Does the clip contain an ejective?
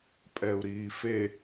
yes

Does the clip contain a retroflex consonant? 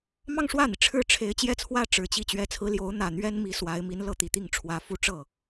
yes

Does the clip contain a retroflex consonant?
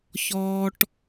yes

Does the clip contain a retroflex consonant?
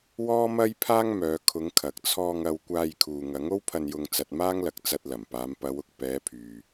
no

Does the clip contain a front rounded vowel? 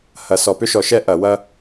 yes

